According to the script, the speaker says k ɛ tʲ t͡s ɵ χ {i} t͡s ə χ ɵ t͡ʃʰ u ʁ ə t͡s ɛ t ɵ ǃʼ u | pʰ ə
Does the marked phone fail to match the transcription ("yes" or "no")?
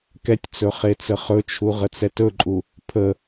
yes